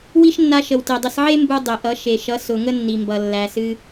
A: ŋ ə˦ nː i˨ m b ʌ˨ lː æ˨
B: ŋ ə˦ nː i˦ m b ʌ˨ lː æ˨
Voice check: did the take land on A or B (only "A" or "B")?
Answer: A